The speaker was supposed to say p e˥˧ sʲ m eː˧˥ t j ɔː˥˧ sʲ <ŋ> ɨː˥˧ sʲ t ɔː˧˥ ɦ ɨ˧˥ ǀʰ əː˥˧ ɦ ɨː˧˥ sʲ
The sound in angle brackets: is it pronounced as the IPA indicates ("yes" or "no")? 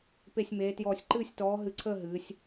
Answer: no